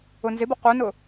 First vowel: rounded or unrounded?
rounded